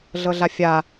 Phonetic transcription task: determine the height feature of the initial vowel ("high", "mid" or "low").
mid